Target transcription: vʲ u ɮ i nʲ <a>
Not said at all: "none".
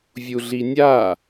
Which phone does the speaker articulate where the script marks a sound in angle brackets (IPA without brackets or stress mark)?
a